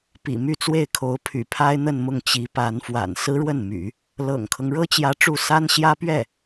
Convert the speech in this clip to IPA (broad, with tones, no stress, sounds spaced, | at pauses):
p ḭ˨˩ m y˥˧ t͡s w e˥˩ ɪ̯ kʰ o˧˥ ʊ̯ pʰ y̰˨˩ pʰ a˥ ɪ̯ n̪ ə˥˧ n m ʊ˥˩ ŋ t͡ɕ i˧˥ p a˧˥ n f w a̰˨˩ n s ɹ̩˥ ɻ w ə˥˩ n m y̰˨˩˦ | l ɤ̰˨˩ ŋ kʰ ɤ˦ ŋ ɻ ɤ˥ t͡ɕ j ä˧˥ ʈ͡ʂ u˥˩ s a˥ n ɕ j ä˥ p ɥ ɛ˥˩